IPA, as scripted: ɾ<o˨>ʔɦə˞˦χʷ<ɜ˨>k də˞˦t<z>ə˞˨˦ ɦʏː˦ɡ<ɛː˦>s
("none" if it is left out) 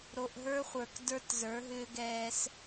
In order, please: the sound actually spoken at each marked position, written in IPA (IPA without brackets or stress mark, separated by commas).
o˨, ə˞˨, z, ɛː˦